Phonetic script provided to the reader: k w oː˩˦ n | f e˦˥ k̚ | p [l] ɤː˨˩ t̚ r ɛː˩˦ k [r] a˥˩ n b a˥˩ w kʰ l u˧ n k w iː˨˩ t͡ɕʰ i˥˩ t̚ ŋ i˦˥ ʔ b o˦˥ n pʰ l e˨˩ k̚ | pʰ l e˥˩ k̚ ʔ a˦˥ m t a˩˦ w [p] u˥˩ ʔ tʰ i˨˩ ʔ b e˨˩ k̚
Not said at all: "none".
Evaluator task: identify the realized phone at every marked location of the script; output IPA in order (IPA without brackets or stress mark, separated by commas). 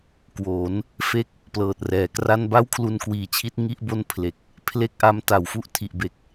l, r, f